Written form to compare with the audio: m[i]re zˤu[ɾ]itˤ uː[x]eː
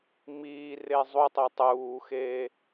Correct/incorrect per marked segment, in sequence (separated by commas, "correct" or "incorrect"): incorrect, incorrect, correct